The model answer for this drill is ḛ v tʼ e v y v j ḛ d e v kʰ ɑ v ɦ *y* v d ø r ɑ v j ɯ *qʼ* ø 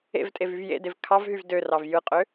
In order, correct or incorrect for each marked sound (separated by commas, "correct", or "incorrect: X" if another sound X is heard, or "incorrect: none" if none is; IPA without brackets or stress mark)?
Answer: correct, correct